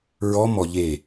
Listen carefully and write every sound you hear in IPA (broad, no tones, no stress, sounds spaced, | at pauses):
ɹ ɔ m ɔ ʎ e